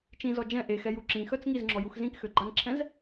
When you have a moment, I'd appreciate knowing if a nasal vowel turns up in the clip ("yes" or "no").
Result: yes